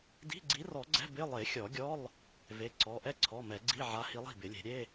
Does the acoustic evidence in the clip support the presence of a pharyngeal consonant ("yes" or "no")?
yes